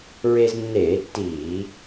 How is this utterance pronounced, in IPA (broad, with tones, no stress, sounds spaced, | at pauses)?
ɹ e˧ z nː eː˧˩˧ tː iː˧˩˧